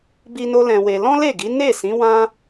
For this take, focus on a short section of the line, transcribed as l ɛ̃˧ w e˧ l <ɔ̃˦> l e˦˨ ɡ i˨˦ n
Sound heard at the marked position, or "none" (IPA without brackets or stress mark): ɔ̃˦